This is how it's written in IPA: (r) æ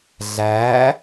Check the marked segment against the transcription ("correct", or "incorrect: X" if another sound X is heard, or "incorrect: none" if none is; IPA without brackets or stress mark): incorrect: ɮ